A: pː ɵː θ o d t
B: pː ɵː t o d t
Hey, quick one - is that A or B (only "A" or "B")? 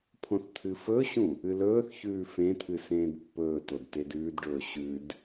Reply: B